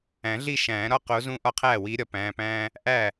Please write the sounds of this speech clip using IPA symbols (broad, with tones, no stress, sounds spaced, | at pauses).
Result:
æ̃˨˩˦ ɮ i˥˩ ʃ æ̃ː˨˩˦ ɾ ɒ˥˩ q o˨˦ z ũ˦ ʔ ɒ˦ qʰ æː˥˩ w iː˨˦ ɾʲ ɒ˨˩˦ p æ̃ː˩˧˩ p æ̃ː˦ | ʔ æ˥˩